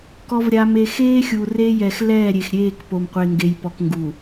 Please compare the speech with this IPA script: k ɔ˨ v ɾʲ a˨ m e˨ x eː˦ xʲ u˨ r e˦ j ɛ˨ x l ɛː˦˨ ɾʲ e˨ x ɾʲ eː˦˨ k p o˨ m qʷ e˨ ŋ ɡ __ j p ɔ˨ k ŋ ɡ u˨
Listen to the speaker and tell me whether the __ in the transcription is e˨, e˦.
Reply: e˨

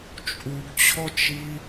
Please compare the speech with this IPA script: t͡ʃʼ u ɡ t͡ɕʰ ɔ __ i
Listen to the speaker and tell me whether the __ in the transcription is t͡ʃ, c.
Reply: t͡ʃ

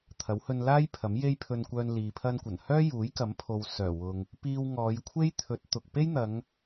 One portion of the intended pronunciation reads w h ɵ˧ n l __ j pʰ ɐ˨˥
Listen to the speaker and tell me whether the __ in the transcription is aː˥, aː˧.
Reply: aː˥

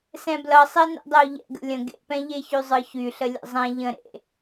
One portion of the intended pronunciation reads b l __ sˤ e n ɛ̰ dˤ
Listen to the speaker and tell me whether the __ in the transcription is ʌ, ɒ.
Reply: ʌ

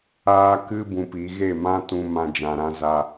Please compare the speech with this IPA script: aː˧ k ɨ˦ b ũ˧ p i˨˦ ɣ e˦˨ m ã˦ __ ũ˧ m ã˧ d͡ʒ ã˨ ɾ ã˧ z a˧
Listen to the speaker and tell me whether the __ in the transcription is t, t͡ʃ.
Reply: t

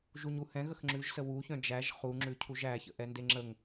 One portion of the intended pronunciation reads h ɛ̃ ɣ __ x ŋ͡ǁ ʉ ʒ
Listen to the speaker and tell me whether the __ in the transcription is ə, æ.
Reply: ə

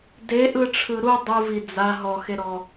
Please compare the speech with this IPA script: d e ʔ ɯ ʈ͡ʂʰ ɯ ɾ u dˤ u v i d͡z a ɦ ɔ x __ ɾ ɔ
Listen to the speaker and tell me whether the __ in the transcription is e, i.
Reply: e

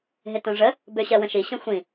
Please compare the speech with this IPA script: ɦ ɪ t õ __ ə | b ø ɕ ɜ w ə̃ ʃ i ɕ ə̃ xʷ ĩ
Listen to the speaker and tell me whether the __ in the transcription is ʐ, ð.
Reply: ʐ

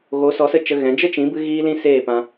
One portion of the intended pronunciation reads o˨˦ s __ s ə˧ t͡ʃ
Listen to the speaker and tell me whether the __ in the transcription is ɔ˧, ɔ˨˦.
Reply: ɔ˨˦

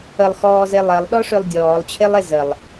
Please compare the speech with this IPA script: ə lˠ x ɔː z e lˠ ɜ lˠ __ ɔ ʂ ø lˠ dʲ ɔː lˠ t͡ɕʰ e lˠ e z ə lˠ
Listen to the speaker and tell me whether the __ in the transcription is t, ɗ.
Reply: ɗ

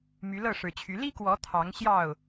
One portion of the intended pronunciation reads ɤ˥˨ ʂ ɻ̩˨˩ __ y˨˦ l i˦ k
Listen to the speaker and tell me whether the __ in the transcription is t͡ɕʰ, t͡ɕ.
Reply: t͡ɕʰ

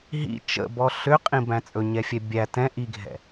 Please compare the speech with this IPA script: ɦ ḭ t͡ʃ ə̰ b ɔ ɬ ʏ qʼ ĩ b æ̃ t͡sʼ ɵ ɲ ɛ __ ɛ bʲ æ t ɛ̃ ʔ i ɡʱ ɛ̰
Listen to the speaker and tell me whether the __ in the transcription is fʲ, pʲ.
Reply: fʲ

